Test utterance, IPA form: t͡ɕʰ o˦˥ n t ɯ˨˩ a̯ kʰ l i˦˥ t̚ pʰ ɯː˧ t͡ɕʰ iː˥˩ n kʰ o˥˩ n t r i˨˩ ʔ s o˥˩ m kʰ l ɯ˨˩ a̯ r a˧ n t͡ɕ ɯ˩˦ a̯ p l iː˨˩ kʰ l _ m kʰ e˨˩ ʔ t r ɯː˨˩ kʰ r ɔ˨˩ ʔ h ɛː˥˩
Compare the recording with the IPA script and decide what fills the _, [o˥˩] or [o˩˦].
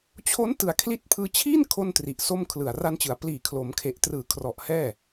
o˩˦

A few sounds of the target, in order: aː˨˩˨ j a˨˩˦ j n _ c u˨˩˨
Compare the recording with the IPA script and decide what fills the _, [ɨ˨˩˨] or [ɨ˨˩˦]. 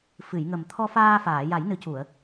ɨ˨˩˦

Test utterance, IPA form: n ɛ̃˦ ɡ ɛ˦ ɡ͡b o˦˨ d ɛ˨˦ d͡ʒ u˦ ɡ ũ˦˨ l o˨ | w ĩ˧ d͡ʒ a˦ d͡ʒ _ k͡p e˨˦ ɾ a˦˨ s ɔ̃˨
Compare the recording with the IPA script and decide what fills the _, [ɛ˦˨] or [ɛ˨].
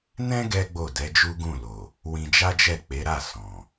ɛ˦˨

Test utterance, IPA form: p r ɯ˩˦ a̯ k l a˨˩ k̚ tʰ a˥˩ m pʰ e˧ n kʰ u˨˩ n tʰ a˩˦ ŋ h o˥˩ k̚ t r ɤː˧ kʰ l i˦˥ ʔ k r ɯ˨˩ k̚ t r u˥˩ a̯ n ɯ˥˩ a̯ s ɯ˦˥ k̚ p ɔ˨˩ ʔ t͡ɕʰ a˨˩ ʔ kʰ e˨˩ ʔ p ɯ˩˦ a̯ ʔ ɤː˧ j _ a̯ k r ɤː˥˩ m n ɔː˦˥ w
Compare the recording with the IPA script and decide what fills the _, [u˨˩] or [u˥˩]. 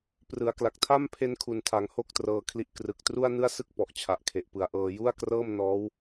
u˥˩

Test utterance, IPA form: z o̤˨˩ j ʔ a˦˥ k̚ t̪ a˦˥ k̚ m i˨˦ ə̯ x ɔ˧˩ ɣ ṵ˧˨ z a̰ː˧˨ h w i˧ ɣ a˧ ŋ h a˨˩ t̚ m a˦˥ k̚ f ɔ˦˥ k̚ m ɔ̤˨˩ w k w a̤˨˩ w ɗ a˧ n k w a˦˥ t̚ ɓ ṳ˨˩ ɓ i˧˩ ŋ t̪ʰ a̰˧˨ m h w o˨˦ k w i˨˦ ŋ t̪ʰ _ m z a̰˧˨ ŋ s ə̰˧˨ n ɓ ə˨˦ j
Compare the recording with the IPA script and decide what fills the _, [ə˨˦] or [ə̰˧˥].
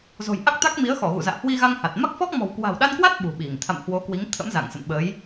ə̰˧˥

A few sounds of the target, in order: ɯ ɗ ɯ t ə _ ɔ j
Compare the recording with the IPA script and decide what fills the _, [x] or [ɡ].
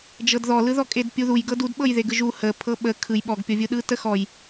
x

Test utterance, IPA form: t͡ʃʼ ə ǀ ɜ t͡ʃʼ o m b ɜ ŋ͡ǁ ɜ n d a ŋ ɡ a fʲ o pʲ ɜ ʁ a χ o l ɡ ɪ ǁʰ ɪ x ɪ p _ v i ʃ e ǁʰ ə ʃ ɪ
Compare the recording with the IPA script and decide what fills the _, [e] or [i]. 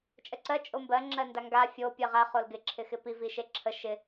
i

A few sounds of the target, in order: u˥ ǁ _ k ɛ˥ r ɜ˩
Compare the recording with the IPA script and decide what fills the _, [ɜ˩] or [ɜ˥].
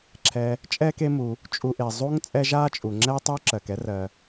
ɜ˩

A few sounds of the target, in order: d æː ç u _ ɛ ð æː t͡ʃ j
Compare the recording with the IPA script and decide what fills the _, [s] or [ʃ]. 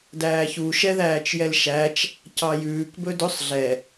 ʃ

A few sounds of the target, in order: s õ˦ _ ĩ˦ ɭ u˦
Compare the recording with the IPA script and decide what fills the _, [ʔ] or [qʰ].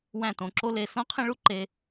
qʰ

